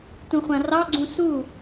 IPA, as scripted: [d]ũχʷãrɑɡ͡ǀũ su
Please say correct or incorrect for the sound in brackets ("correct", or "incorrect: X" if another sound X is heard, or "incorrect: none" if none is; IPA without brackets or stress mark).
incorrect: t